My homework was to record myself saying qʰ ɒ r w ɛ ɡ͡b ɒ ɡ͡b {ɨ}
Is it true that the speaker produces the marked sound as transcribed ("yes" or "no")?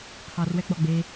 no